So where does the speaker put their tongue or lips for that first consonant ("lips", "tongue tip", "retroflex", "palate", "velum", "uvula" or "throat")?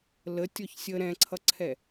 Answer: tongue tip